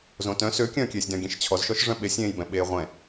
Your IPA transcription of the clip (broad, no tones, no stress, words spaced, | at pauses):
zõtœ̃ søkʲœ̃ːkʲeːsʲdœ̃ ɡʲẽʃt͡ɕʰɔzʃɔʃ ʐœ̃ɓesʲẽːjbɛ̃ ɓeːʁʷɛ̃